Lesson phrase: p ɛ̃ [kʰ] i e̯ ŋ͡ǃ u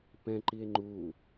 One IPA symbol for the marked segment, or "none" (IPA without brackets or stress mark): ǃ